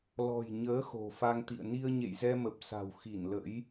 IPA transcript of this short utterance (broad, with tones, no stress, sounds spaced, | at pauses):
l ɔ̤˨˩ j ɲ əː˨˦ x o̤˨˩ f a˧ ŋ t̪ ḭ˧˨ ə̯ n i˧ ə̯ ɲ ḛ˧˨ j z ɛ˧ m ə˨˩ p̚ s a̤˨˩ w x i˧˩ n l ə̰˧˥ j